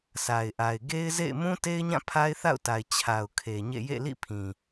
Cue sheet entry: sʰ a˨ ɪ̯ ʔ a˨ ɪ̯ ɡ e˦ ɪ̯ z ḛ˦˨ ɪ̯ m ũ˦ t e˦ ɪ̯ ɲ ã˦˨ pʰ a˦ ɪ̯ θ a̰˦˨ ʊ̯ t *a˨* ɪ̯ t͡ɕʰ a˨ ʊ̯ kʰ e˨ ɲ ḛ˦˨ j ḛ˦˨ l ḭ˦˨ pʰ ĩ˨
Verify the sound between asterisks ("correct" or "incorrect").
correct